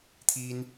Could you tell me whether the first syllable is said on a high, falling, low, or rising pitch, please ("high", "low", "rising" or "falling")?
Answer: high